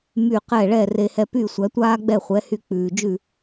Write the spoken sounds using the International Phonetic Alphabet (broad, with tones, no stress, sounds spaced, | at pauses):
m y˥˩ q ɛ˥˩ ɭ ɛ˥˩ r e˧ h ɛ˧ p y˥˩ sʷ æ˩˥ tʷ aː˥ ɡ͡b ɛ˥˩ χʷ ɛ˩˥ h y˧ k͡p ʉː˩ d͡ʒ ʉ˥˩